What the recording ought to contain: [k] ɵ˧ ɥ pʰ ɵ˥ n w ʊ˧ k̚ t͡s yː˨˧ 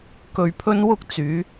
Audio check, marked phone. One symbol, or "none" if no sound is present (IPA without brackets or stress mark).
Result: k